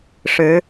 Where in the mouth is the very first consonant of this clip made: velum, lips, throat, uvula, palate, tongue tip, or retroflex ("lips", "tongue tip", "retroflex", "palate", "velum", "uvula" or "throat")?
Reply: retroflex